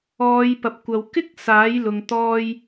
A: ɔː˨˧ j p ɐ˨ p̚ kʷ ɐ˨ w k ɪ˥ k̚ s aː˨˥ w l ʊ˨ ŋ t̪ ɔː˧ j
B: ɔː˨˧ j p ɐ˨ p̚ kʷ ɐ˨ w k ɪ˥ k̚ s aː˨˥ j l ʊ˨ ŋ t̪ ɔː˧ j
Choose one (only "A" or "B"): B